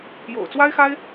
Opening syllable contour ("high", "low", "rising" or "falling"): low